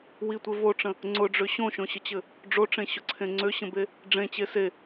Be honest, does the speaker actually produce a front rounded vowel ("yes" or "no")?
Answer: yes